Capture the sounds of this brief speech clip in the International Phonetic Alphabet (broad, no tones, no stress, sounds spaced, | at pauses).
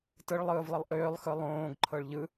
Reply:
t ɯ ɭ lˠ ɯː v lˠ ə lˠ ʔ ʏː lˠ x ɯ lˠ õː ɡ ǃʰ ɤ ɭ ʎ ɯ